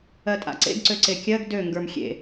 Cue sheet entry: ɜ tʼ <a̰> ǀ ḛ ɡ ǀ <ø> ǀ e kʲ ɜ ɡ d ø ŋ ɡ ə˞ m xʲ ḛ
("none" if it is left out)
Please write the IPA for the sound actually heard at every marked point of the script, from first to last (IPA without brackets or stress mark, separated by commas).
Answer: a̰, ø